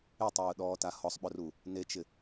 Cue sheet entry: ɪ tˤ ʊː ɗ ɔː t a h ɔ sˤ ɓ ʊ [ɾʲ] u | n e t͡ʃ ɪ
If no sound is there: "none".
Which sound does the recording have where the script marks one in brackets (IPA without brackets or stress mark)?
r